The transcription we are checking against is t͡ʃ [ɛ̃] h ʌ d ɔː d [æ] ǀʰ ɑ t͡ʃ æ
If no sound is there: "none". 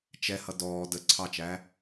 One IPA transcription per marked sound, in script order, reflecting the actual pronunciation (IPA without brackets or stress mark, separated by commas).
ɛ, ə